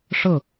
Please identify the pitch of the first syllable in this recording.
falling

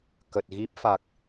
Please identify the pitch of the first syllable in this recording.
low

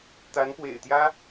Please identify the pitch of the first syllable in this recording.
rising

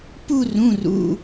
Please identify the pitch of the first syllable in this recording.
falling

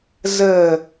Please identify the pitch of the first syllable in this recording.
low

